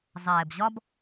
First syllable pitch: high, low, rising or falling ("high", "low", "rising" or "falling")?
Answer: low